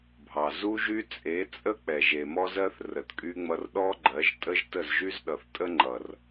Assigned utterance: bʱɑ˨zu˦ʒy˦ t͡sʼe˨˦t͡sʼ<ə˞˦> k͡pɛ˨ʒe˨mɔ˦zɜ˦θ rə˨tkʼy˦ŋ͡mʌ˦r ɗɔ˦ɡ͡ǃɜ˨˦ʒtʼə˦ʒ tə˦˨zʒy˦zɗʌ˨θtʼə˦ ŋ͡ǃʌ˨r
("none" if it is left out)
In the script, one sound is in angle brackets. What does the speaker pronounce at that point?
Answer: ə˦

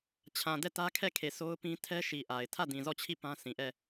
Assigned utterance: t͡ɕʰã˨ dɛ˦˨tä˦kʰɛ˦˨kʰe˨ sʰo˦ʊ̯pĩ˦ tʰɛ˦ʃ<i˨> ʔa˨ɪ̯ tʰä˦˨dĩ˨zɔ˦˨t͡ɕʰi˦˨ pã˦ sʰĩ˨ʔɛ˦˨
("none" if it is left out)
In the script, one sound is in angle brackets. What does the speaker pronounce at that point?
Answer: i˨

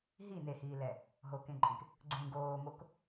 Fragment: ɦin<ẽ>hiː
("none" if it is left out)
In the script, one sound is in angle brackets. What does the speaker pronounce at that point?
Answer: e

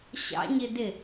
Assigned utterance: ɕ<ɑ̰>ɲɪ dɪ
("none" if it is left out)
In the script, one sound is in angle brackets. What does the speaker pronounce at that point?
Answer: ɑ̰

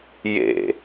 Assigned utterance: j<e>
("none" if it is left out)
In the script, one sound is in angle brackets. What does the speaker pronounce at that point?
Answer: ḛ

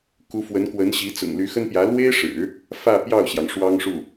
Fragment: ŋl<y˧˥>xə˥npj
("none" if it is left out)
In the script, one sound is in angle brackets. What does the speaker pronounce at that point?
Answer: y˧˥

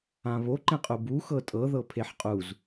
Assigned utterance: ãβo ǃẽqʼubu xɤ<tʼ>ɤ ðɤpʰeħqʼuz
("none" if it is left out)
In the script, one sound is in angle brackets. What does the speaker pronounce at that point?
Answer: tʼ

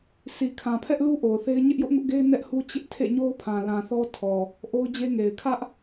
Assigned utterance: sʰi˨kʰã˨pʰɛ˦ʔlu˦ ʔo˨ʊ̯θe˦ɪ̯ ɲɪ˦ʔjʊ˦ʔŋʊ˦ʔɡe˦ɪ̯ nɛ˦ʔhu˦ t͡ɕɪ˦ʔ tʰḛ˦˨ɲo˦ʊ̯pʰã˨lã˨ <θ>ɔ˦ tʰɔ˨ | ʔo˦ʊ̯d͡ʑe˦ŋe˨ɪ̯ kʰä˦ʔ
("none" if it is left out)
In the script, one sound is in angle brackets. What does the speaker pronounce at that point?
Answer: θ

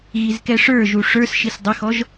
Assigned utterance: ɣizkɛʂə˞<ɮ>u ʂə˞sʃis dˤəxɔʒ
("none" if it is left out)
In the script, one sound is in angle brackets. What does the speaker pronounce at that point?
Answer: ʒ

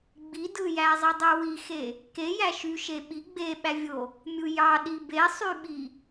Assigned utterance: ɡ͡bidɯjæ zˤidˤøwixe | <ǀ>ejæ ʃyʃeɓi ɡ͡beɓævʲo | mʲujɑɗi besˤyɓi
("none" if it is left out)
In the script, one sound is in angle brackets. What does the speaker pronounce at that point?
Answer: k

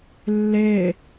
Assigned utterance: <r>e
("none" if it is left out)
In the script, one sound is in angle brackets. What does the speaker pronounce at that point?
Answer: lː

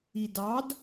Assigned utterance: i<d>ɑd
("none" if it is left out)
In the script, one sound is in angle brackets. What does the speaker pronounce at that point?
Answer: d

